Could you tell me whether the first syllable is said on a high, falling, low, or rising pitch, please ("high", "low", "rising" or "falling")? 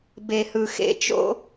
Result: low